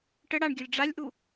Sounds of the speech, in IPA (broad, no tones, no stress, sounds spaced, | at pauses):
ʈ ə ɽ a ɳ ɡʲ œ lʲ ɖ͡ʐ a lʲ ʔ u